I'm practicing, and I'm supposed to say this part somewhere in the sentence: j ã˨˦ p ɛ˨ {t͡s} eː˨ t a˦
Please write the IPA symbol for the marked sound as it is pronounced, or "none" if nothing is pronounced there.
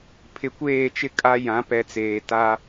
t͡s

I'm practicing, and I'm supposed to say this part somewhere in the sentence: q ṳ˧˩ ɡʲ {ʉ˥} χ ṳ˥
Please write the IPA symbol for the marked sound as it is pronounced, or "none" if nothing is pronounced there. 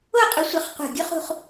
u˥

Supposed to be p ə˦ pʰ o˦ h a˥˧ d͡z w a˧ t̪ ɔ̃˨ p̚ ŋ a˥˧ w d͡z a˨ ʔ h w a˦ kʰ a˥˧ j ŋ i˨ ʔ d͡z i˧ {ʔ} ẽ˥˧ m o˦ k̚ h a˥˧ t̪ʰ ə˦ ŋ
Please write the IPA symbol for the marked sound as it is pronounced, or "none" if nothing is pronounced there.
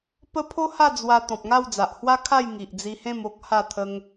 h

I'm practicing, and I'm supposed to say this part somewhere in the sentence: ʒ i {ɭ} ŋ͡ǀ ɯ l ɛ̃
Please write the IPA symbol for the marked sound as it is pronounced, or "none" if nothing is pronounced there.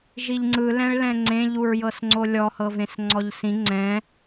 ʎ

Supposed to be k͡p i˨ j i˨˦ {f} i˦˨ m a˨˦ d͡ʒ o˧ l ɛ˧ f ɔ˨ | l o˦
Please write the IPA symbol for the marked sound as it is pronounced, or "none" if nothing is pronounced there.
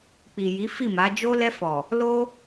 f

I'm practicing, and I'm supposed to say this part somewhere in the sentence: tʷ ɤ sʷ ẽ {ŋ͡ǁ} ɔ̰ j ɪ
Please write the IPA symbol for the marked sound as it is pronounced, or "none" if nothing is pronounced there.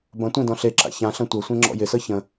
ŋ͡ǁ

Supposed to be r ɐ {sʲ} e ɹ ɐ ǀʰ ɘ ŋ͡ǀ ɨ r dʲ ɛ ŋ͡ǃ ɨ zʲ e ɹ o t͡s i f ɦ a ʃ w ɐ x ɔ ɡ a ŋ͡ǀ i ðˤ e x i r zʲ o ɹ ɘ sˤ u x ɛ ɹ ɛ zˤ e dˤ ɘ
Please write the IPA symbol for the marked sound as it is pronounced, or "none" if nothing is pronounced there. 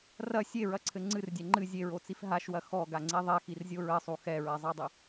sʲ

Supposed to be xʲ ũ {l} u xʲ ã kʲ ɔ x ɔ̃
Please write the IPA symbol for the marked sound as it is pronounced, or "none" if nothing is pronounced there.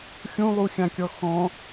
lˠ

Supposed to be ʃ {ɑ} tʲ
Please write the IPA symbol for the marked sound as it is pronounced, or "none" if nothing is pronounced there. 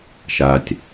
a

